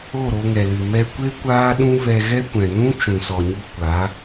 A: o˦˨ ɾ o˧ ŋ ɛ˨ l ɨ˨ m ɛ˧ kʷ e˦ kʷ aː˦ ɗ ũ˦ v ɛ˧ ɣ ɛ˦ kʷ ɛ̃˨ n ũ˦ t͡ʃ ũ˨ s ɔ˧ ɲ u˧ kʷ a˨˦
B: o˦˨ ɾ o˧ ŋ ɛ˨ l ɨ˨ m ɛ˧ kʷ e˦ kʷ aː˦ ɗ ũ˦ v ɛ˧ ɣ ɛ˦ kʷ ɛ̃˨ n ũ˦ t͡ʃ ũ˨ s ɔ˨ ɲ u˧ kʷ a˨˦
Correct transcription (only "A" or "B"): B